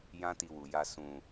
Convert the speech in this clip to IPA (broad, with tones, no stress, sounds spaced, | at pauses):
j ã˦ t i˧ w u˨ j a˧ s ũ˨